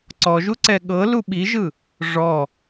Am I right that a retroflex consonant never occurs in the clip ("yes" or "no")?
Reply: no